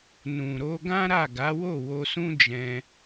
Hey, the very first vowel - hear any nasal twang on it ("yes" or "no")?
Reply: yes